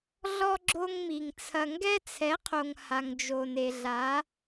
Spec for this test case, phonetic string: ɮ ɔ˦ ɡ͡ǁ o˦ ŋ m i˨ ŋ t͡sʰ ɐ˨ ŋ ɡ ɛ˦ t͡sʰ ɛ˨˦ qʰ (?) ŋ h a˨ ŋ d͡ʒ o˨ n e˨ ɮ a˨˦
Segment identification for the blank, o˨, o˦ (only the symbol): o˨